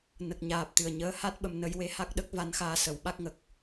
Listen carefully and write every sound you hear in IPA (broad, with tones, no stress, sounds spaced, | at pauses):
n ə˨˩ k̚ ɲ aː˨˩ p̚ t̪ ɨ˨˩ ə̯ ɲ əː˧˥ h a˦˥ t̚ ɓ ə˧ m n ə˧ j w e˧˥ h a˦˥ k̚ ɗ ə˦˥ k̚ v a˧˥ n x aː˧ s ə˨˩˦ w ɓ a˦˥ k̚ ŋ ə˨˩ k̚